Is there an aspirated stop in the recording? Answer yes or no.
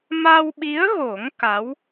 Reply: no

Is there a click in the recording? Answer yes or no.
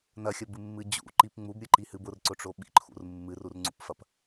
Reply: yes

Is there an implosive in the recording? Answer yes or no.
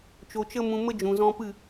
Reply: no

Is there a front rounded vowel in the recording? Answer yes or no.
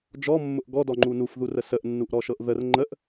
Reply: no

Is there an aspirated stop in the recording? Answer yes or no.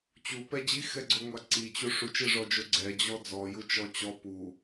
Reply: no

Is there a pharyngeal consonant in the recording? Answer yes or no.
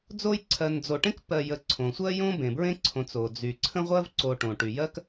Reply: no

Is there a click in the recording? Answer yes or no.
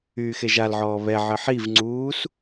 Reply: yes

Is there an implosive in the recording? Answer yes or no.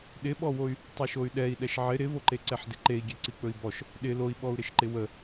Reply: yes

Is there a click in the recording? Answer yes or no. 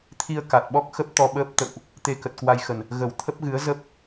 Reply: no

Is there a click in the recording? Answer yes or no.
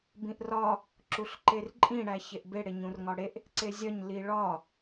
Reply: yes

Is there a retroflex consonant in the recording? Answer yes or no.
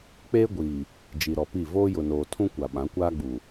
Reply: no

